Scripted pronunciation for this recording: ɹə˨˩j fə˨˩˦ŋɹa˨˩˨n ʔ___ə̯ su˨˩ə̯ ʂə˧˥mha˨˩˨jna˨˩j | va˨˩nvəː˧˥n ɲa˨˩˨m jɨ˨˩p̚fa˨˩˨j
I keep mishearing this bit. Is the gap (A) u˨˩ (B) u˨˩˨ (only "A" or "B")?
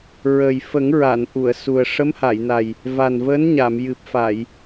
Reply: B